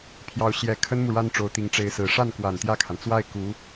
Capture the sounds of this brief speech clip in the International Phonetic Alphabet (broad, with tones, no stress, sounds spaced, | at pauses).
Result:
pʰ j ɑ˧˥ ʊ̯ ɕ j ɛ˨˩ kʰ ə˥ n m u˨ ɻ a˥ n ʈ͡ʂ o˧˥ ʊ̯ t̪ i˧˥ ŋ ʈ͡ʂ e˧˥ ɪ̯ s ɹ̩˨˩ ʂ a˥˩ n k w a˨˩ n t̪ j ä˥˩ kʰ a˩ n t͡s w a˥˩ ɪ̯ k u˧˥